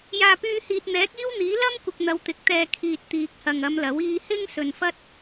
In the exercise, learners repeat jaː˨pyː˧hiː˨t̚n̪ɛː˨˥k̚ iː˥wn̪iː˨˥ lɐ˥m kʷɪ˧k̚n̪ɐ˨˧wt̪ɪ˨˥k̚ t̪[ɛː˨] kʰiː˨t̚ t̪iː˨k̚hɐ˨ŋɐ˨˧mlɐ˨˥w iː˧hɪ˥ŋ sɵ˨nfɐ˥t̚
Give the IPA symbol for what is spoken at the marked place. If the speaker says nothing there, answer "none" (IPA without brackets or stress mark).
ɛː˨